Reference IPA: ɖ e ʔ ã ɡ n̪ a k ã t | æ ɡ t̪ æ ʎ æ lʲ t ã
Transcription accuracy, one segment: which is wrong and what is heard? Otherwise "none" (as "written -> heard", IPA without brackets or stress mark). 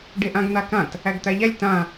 none